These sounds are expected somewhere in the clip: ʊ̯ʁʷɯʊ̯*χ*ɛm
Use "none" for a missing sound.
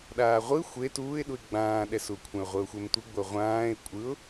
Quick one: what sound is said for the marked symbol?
xʷ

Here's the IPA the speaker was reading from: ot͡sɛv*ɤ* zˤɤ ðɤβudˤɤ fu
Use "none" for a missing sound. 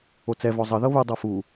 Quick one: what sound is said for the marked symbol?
ɔ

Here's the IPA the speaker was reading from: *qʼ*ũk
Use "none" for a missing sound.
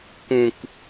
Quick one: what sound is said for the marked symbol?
k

